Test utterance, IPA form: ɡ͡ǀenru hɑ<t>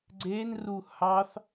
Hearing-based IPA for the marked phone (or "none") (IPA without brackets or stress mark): θ